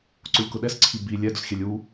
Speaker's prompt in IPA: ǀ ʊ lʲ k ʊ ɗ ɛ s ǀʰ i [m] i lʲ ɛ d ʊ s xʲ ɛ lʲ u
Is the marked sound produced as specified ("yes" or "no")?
no